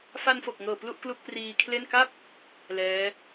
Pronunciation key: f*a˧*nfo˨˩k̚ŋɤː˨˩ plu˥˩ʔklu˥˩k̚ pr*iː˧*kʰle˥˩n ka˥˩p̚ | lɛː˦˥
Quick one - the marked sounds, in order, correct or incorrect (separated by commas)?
correct, correct